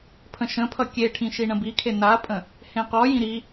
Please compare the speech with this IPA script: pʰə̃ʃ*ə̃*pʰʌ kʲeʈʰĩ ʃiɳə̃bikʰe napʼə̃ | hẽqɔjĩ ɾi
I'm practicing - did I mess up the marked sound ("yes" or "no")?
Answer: no